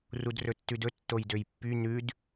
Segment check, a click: absent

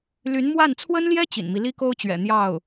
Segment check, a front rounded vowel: present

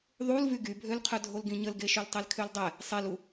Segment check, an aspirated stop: present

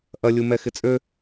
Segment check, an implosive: absent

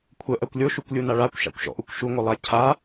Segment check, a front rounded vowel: absent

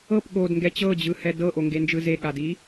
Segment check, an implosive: present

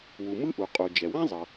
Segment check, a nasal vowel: present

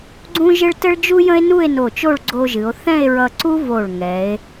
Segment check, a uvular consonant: absent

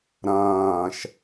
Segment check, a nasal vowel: present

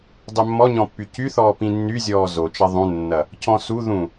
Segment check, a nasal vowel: present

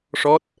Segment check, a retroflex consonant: present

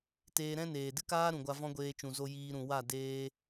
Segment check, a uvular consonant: absent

